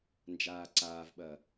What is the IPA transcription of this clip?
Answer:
nd͡ʒaːǀaːvɓɐː

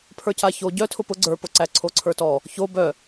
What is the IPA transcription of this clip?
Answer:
pʰə˞caço ɟœ tʰʊpʊ ɡ͡ǀə˞po ǀæǀʰoǀʰə˞tɔ | ço bœ

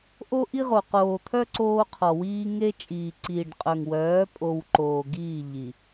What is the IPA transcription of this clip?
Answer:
ʔo˦ʔi˦ʁo˨ qoː˨t̪ʰœ˦ ǀoː˦qʰɔ˨wiː˦ ŋe˦ t͡ʃʼiː˨ǀiː˨ɖqʼœ˨ŋ wœː˨˦pʼo˨w ǃoː˨ɡiː˦˨ ʎi˨

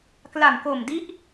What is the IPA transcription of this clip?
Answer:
kla˨˩mko˨˩mdi˦˥ʔ

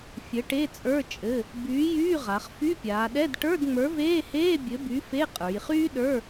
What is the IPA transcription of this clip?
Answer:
fʲɘ˨˥ʈe˧˥˧t͡sʼə˞˧˥˧ t͡ʃʼɘ˧˥˧ | byː˨˥jyː˧˥˧ʁa˩˧χ fy˧˥˧pʲaː˩˧ɗɛ˧˥˧d ʈə˞˧˥˧dŋ͡mə˞˨˥veː˧˥˧heː˧˥˧ bʲɘ˨˥by˨˥ fe˧˥˧qʼə˞˩˧jχyː˥ɗə˞˧˥˧

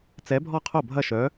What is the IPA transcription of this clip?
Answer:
t͡sɛ˨˥bʱɔ˥˩ qʰo˥˩bʱɐ˥˩ ʃœ˨˥

